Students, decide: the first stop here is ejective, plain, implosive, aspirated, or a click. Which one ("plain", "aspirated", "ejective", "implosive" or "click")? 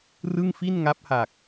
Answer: plain